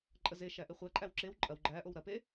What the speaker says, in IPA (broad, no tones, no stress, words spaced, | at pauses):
ǃʼəzeʃæ ʔeχʷæǃʼæw ǁew ǃʼɐw ɡ͡ǃæʔow ɾɐpe